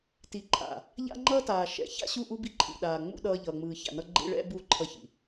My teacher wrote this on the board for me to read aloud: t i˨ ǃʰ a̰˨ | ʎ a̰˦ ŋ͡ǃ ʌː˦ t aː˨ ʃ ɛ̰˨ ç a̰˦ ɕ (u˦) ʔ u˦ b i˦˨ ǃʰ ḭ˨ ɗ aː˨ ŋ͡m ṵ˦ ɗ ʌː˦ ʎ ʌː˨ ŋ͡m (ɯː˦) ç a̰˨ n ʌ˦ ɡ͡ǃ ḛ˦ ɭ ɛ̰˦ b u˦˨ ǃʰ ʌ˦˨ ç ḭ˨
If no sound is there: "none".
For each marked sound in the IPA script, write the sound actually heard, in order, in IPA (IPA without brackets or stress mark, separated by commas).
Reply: u˦˨, ɯː˨